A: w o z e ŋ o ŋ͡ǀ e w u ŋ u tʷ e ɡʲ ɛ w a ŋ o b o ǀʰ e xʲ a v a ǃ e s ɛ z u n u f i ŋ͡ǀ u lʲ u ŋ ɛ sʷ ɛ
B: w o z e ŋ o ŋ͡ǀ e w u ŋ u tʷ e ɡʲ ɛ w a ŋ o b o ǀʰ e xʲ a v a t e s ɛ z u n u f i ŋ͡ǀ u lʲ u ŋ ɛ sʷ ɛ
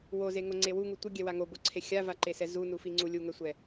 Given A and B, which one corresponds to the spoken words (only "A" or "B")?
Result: A